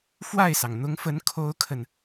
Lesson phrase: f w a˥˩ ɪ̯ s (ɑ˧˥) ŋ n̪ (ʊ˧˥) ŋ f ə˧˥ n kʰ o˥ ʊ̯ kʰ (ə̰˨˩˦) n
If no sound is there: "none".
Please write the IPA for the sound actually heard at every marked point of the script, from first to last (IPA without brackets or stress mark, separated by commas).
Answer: ɑ˩, ʊ˧˥, ə˨